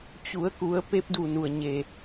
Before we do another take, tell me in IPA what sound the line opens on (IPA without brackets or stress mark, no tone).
t͡ɕ